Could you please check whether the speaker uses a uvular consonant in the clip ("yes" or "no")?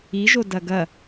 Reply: no